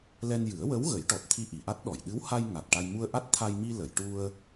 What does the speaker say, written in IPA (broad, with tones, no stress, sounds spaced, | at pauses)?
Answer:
l ɛ˧ n j ɨ˨˩˦ ə̯ w ə˧˥ w ɣ ə˨˩˦ j ʈ ɔ˨˩ t̚ t̪ʰ i˧ ʔ i˨˩˨ ʔ a˦˥ t̚ ɗ ɔ˨˩˨ j ɗ ɨ˧˥ w h a˧ j ŋ a˨˩ t̚ ʈ a˧ j m u˧ ə̯ ʔ a˦˥ t̚ t̪ʰ a˧ j m i˧ l ə˨˩˨ j ʈ u˧ ə̯